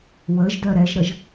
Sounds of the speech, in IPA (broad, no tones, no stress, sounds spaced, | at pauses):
w ə ʒ d œ ɾ ɛ ʒ ɾ ə ʒ